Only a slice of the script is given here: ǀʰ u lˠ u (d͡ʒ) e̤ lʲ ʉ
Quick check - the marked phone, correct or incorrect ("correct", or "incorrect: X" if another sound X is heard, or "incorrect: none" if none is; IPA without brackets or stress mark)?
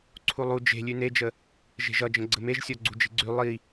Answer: correct